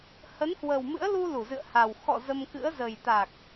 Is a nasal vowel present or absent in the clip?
absent